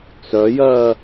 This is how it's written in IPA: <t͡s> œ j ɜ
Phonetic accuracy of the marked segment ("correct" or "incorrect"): correct